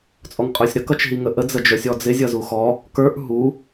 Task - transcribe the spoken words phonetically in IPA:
t͡sʼ ɔ ŋ qʼ ə˞ sʲ ɾ ə k ʌ t͡ʃ ɦ i ŋ ə ʔ ə d͡z ə d͡ʒ ə˞ sʲ ɔ d͡z ɪ zʲ ʌ z u x ɔ | k ə˞ ʔ ɦ u

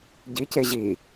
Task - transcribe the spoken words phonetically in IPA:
ɟ i c e ʑ i

